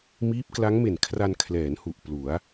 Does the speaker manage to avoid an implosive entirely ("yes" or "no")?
yes